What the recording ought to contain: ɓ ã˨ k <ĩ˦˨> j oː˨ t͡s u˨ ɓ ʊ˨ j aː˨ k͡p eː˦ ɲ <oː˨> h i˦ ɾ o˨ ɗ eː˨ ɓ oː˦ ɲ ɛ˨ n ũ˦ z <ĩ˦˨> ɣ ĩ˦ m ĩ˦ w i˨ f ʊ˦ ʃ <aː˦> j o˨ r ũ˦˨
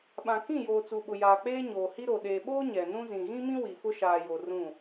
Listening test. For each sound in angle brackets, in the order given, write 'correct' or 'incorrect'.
correct, correct, incorrect: ĩ˨, incorrect: aː˨

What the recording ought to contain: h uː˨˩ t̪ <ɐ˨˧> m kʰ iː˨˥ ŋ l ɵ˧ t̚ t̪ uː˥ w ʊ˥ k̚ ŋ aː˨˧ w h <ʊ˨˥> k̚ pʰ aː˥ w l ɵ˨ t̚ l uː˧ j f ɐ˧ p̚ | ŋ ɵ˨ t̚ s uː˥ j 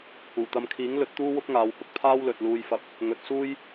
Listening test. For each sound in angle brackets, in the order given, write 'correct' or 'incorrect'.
correct, incorrect: ʊ˥

